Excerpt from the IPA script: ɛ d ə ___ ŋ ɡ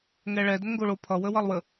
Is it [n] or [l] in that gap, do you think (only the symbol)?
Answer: n